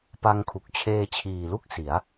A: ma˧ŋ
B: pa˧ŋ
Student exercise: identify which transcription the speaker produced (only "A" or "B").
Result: B